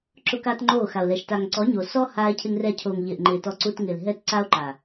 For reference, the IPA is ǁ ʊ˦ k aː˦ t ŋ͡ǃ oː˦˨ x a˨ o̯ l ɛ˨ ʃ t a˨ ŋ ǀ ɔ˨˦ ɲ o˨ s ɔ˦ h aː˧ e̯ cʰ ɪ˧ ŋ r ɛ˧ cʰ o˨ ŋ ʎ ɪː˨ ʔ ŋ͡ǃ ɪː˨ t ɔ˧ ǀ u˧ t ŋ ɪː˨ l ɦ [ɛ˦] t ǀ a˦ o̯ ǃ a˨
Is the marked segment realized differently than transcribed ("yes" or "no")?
no